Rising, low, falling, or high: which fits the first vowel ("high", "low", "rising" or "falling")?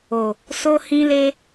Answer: low